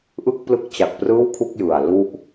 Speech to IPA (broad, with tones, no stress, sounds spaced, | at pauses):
ʔ ɯ˥˩ k̚ p l ɯ˦˥ k̚ t͡ɕ a˨˩ k̚ p r ɯː˥˩ w kʰ u˥˩ k̚ j ɯ˨˩ a̯ l u˥˩ ʔ